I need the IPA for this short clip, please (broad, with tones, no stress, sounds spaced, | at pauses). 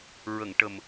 ɹ ə˨˩˨ ŋ ʈ ə˨˩ m